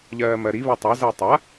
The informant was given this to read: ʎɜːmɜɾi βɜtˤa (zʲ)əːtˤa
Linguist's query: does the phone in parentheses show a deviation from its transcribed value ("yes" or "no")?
yes